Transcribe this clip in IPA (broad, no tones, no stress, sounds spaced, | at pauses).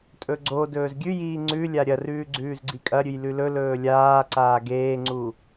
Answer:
tʼ ɵ ɡ͡ǀ o d ɵː z ɡʲ ʉ j iː ŋ͡ǀ ʉ lʲ a ɾʲ ɐ r ʉː ɡ͡ǀ ʉː z ɡ͡ǀ i kʼ ɐ ɾʲ ʉ j l ʉ l ɵ l ɵː lʲ aː ǀ aː ɡ eː ŋ͡ǀ u